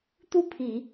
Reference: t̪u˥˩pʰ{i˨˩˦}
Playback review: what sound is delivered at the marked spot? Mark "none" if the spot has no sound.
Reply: i˨˩˦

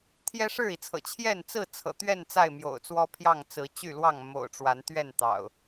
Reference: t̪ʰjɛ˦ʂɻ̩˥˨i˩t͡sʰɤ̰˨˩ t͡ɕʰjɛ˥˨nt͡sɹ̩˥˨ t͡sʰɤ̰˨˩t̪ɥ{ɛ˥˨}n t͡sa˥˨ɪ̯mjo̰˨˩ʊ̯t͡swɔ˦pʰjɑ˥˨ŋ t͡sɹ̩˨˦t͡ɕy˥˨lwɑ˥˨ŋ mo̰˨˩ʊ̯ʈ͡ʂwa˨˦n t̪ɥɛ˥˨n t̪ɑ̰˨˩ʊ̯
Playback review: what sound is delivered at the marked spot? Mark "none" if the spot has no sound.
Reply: ɛ˥˨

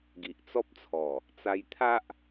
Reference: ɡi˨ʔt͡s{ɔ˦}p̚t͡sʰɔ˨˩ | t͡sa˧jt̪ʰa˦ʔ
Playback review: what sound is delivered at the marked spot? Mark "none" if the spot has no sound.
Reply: ɔ˦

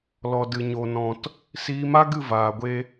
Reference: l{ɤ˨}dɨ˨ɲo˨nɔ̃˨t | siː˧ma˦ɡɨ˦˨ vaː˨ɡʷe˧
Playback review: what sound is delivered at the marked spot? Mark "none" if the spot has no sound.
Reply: ɔ˨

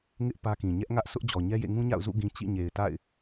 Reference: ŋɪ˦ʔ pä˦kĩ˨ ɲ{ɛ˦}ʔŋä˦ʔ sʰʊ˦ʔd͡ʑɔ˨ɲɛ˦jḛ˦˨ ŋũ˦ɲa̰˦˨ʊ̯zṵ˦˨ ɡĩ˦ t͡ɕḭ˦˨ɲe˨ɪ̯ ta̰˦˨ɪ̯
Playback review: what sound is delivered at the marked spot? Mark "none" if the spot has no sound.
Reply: ɛ˦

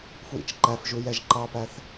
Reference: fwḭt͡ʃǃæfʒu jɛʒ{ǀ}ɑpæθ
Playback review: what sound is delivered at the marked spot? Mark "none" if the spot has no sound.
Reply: ǃ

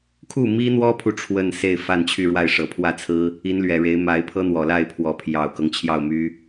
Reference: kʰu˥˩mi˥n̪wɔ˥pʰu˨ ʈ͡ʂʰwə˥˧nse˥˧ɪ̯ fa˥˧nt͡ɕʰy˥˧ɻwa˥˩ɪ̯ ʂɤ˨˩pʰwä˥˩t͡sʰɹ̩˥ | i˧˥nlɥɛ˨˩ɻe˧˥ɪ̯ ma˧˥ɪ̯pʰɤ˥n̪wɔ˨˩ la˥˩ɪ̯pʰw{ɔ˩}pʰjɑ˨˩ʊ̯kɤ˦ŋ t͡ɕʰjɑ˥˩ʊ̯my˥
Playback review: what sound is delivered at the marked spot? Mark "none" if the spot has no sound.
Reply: ɔ˧˥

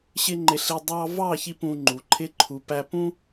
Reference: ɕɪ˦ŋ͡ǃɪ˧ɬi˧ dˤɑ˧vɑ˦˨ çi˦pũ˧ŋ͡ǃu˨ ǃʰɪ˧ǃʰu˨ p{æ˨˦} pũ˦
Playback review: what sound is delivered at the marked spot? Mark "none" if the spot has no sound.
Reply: æ˧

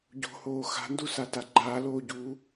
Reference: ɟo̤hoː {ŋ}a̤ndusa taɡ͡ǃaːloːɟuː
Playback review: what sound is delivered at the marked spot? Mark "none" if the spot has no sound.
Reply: x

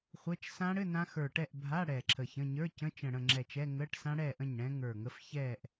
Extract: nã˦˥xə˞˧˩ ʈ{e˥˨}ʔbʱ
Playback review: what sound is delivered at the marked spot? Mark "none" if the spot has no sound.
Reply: ɛ˥˨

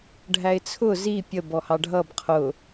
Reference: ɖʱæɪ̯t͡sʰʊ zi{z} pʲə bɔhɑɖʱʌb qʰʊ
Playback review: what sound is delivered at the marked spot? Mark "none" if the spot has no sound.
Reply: none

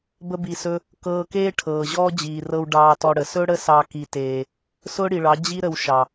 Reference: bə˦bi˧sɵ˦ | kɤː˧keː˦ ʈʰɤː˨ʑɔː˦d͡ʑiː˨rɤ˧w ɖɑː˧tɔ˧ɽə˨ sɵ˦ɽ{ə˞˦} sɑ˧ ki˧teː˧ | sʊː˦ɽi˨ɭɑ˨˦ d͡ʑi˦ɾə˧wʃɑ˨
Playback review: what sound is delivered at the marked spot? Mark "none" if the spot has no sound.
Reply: ə˦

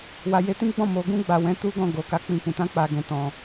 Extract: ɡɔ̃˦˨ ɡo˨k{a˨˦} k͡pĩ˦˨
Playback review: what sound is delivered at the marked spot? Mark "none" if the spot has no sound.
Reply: a˨˦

